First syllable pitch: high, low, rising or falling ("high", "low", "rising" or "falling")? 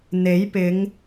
rising